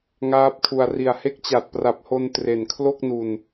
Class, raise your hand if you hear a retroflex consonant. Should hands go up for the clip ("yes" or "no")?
no